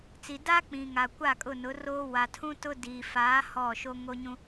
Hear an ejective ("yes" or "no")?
yes